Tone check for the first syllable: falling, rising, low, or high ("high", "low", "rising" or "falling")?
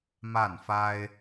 falling